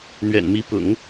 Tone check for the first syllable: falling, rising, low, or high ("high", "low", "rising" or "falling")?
low